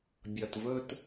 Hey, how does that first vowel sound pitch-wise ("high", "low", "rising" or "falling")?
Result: low